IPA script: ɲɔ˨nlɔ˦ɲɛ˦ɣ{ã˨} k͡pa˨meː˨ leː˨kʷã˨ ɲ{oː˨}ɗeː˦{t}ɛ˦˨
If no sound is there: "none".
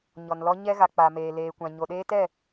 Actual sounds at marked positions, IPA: a˨, o˨, t

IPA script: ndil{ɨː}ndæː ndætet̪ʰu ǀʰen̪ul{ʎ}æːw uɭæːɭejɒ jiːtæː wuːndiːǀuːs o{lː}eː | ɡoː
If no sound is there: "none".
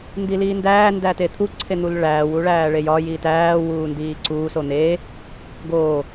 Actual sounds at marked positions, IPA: iː, ɭ, n̪

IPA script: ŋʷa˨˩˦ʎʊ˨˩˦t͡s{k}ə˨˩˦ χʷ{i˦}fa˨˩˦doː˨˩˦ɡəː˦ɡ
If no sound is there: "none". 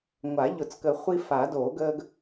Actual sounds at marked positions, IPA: k, i˦

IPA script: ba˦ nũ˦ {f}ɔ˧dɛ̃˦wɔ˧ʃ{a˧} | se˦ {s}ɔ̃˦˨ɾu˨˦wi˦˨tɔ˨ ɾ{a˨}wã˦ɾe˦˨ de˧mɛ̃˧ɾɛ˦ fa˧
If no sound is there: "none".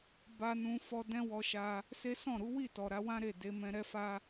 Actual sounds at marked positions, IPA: f, a˧, s, a˨˦

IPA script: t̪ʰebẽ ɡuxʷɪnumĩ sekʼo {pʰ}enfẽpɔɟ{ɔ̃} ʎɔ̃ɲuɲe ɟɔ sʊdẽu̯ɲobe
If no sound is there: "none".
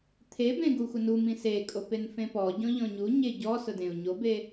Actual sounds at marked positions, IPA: p, ɔ̃

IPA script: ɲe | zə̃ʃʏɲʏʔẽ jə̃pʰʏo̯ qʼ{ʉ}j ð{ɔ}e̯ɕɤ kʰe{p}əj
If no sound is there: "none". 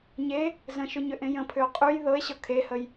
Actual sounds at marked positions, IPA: ʉ, ɤ, h

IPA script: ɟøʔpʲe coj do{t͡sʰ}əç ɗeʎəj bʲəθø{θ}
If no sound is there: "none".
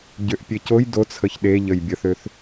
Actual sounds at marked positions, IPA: t͡sʰ, θ

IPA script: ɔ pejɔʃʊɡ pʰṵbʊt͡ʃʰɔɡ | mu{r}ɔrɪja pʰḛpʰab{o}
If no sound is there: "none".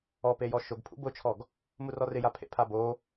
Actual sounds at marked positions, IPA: r, o

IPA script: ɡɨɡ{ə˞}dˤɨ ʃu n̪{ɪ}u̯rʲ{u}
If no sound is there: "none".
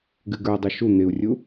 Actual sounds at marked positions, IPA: ə˞, ɪ, u

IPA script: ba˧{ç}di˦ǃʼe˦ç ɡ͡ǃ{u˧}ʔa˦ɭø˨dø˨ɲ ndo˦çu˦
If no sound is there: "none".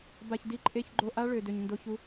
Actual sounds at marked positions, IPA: ç, o˧

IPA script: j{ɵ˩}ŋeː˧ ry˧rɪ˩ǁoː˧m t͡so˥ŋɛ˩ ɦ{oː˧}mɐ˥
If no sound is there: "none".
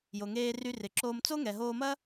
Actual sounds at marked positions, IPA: o˩, oː˧

